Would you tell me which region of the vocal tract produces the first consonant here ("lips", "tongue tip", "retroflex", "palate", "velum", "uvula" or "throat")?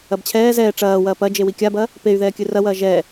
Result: lips